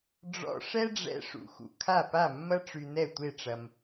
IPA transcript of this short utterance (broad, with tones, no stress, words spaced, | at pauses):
ɖ͡ʐɔ̰˧ʂɛ˥ɖ͡ʐɛ̰˧ ʂṵ˩xṵ˩ kʰa˥˩pa˥˩mːɐ˥ ʈ͡ʂy˧nɛ˥˩tʷe˥˩ʈ͡ʂɐ˧m